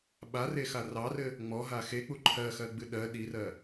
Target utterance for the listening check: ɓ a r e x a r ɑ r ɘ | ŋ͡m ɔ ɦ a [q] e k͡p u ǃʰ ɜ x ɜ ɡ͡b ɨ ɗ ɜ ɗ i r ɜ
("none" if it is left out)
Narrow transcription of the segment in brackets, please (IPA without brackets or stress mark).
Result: x